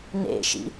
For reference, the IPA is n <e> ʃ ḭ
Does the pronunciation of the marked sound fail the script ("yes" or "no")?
yes